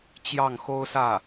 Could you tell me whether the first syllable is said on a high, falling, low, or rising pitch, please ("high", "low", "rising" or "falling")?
falling